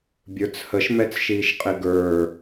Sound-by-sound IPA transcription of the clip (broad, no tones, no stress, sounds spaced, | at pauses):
bʲ ə˞ t͡s h ə ʃ m ɛ t͡s ʃ iː ʃ qʼ ɪ ɡ ə˞